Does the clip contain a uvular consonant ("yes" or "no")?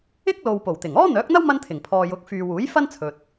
no